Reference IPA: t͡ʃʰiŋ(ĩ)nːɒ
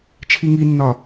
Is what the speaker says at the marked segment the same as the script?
no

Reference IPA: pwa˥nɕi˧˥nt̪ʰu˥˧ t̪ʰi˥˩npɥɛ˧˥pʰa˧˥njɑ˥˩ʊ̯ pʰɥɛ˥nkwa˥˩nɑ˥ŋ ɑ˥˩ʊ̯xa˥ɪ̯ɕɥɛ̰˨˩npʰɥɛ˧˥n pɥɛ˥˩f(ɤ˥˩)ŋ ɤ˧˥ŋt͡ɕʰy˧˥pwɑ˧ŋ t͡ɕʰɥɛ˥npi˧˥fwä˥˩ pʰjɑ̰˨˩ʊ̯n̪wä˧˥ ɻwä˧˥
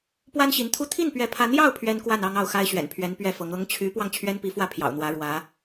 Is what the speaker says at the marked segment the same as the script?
no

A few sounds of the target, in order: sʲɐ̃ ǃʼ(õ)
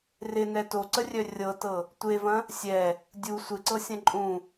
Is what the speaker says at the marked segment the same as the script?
no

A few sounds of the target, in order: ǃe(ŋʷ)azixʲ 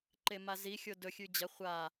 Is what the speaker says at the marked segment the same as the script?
no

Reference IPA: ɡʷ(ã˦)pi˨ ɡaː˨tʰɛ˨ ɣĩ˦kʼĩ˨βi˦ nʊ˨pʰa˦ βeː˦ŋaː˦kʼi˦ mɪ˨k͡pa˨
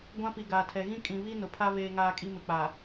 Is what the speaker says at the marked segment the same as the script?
yes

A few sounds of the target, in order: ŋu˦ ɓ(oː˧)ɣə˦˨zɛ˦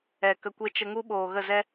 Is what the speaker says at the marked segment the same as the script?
no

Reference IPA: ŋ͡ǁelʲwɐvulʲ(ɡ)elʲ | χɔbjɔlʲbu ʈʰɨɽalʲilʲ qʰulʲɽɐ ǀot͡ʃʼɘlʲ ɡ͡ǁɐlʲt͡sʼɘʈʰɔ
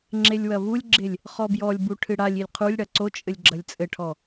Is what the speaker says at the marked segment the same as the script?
no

